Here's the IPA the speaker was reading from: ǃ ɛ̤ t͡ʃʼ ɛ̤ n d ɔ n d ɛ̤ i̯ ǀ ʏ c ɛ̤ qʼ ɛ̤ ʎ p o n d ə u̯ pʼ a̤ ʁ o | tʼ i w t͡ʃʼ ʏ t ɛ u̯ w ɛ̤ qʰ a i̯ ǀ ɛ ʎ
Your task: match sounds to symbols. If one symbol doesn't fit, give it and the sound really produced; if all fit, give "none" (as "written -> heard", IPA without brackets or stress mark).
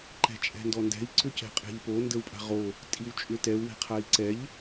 none